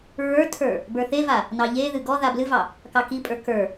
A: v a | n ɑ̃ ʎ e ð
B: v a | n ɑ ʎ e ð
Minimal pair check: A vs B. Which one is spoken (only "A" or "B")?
B